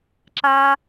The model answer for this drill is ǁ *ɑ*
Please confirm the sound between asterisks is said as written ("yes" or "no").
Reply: no